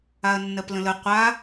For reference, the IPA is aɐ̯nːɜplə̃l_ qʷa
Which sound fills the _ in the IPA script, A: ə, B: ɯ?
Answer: A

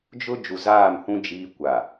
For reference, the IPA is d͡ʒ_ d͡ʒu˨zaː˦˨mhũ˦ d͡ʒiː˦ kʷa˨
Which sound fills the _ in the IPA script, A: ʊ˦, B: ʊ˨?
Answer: A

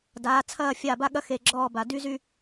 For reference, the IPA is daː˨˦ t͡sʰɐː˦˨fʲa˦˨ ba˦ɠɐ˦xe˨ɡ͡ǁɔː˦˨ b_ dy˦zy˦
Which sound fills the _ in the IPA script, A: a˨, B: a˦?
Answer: A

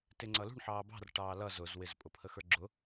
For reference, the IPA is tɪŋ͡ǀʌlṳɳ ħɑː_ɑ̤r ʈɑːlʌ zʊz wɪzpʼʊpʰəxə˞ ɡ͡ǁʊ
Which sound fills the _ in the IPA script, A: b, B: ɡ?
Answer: A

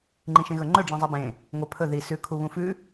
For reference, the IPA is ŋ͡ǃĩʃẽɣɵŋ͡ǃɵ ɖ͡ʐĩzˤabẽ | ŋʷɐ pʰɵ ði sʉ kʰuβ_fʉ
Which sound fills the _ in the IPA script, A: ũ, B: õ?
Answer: A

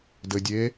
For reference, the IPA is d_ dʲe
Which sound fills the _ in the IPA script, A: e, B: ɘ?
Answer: B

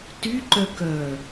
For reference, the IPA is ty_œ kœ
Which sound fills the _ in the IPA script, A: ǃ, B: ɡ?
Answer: A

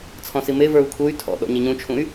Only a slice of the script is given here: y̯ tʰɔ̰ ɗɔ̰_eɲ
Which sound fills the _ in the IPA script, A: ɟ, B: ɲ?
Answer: B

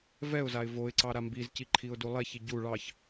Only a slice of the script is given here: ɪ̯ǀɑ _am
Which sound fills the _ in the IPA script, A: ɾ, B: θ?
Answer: A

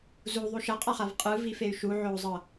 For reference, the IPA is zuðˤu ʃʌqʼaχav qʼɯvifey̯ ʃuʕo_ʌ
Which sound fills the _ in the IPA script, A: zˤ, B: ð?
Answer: A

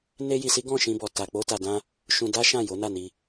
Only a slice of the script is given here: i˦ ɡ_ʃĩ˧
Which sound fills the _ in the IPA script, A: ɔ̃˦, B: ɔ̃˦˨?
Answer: B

